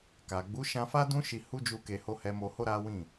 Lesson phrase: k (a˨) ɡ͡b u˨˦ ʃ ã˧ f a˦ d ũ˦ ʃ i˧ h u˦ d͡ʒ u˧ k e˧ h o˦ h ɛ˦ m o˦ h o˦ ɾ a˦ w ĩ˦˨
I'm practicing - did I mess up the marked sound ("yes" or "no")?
no